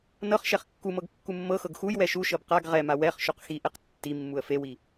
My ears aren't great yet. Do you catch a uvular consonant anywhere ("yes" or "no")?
yes